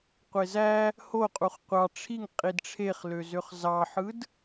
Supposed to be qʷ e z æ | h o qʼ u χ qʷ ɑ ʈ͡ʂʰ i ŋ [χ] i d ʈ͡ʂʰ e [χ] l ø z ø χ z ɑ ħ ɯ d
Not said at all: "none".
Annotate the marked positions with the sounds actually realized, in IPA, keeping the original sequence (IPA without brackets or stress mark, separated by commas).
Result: qʼ, χ